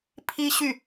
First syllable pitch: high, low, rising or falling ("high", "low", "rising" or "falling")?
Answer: high